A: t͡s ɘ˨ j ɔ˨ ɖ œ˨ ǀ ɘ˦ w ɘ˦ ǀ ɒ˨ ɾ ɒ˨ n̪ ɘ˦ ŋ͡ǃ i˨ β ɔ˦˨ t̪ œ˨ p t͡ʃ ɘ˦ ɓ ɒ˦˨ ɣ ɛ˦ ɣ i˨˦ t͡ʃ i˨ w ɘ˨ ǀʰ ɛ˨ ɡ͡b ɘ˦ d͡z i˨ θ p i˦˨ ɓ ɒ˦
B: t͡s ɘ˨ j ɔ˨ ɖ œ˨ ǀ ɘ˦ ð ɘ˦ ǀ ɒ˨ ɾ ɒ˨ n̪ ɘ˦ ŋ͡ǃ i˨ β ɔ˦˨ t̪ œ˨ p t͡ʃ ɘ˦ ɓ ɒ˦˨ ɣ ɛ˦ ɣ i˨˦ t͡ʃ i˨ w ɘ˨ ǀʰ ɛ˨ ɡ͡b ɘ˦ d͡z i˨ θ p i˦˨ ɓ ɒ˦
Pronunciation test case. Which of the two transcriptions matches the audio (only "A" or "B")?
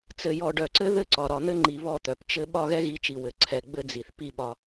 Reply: B